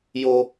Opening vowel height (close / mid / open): mid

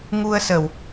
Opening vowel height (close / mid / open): close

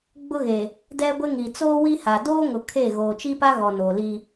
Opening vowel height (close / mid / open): close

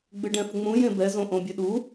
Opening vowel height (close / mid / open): close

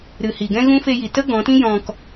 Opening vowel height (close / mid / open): close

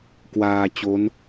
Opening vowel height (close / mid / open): open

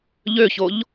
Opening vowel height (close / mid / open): mid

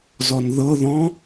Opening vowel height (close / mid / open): mid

